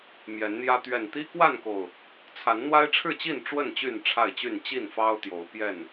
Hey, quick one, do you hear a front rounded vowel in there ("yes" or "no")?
yes